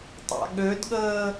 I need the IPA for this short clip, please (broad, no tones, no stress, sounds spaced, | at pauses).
tˤ a̰ ɠ ø d ɠ əː